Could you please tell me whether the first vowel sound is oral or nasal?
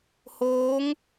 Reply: oral